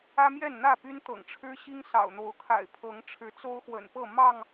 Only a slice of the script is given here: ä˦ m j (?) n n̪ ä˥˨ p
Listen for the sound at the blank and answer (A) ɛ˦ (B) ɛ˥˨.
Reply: B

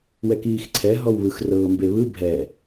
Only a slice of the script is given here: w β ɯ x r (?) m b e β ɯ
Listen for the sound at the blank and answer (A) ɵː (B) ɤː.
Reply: B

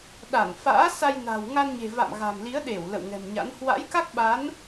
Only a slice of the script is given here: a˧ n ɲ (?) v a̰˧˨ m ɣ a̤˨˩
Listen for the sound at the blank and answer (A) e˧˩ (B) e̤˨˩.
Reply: B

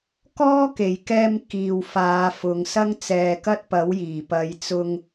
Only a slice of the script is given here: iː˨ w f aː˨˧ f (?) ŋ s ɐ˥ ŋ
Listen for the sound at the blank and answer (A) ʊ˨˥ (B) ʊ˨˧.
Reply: B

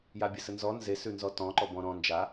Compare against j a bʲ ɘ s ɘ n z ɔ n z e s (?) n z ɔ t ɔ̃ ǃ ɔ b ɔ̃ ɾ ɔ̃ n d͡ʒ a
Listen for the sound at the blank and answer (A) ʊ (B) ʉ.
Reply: B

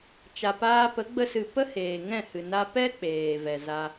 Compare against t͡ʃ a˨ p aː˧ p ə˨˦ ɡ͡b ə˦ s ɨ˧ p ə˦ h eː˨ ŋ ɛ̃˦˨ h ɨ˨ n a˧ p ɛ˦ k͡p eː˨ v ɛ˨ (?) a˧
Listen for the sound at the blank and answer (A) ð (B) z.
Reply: B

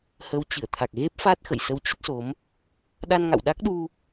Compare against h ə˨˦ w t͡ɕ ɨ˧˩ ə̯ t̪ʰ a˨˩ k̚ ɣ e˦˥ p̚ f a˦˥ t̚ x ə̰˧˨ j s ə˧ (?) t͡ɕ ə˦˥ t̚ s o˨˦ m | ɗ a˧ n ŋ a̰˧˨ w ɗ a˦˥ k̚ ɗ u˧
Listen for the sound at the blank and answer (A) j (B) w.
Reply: B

